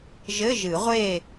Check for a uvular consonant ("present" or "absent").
present